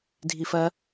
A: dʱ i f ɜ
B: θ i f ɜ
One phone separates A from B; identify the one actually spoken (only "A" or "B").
A